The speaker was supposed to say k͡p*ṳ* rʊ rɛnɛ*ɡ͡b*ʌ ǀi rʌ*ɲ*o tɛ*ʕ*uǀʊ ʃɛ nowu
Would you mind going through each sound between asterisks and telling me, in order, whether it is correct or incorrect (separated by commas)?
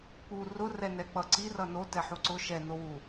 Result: incorrect, incorrect, incorrect, incorrect